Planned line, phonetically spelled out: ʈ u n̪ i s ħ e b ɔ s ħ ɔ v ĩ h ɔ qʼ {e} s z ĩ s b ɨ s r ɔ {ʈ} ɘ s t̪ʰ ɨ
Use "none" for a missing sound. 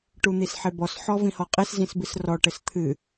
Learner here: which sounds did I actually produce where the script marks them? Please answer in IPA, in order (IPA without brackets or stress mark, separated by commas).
e, ʈ